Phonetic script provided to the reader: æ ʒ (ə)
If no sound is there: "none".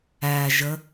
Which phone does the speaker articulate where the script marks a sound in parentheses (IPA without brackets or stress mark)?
ə